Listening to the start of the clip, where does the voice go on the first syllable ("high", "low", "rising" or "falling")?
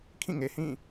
falling